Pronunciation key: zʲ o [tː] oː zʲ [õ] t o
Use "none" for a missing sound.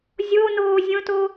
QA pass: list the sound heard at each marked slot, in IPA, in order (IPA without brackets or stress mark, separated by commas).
n, õ